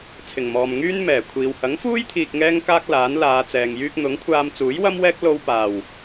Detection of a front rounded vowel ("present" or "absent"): present